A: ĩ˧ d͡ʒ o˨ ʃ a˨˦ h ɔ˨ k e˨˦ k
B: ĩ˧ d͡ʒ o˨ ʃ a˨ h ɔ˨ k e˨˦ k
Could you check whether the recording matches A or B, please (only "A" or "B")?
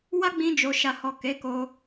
B